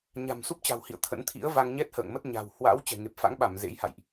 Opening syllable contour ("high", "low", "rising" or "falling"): low